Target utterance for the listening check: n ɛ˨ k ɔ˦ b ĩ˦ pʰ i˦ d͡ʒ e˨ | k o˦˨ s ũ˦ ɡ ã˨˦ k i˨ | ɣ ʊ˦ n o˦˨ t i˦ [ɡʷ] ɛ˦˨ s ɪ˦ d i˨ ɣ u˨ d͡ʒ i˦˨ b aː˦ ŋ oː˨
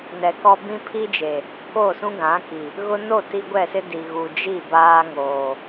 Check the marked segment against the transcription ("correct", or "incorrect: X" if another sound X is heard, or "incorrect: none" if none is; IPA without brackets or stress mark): correct